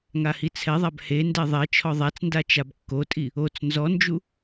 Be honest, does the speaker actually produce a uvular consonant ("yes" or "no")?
no